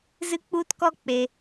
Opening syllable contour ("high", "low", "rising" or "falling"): high